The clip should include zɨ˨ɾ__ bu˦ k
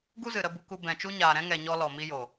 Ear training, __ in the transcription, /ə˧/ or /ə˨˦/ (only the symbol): ə˧